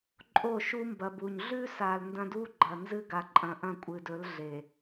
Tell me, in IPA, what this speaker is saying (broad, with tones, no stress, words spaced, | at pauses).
ǃʼo˦˨ʃu˦mbɐ˨bu˨ɲ ɮʉ˦sa˨l ndɐ̃˦du˦ɡ͡ǃɐ˨nzɨ˦ ɡa˨ ǃʼɐ̃˨ʔɐ̃˦˨ kʷʼɨ˨dɵ˨˦l ɮe˨